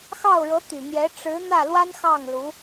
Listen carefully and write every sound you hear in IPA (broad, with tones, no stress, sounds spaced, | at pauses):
x ɑ˥˩ ʊ̯ ɻ ɤ˧˥ t̪ y˨˩ n̪ j ɛ˧˥ ʈ͡ʂ ɻ̩˧˥ n̪ ä˥˩ l w a˥ n x ɑ˥˩ ŋ l u˧˥